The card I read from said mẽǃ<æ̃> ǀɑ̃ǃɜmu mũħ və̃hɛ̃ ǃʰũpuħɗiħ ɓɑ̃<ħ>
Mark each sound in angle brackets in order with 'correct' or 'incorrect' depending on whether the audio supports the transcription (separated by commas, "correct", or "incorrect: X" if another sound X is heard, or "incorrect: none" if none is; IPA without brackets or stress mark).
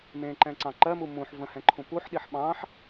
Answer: incorrect: ɛ̃, correct